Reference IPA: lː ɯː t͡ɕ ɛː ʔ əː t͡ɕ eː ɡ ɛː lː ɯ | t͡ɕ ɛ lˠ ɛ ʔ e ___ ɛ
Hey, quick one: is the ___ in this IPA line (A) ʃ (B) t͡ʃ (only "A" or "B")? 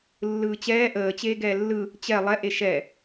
A